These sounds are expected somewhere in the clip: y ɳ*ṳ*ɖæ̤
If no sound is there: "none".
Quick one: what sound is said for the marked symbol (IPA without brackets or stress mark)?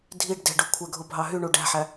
u